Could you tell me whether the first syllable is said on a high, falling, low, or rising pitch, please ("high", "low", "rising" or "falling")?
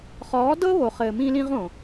rising